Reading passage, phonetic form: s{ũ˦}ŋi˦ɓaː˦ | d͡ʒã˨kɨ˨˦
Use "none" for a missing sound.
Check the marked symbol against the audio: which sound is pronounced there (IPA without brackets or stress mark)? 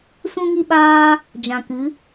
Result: ũ˦